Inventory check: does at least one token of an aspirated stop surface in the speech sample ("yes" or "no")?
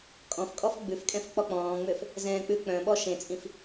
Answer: no